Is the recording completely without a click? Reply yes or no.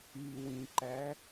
no